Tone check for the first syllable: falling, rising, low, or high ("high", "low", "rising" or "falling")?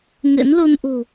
rising